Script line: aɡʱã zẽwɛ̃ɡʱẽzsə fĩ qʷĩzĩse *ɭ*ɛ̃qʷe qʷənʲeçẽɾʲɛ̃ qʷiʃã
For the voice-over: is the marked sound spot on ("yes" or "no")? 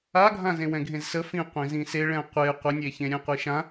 yes